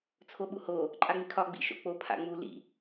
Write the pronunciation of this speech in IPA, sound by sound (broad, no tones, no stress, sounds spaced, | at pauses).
t͡sʰ o ɓ u h o | ǃʼ a ŋ͡m i kʰ ɒ ɡ͡b ḭ ʃ o̰ k͡p o pʰ a̰ ŋ͡m u l ḭ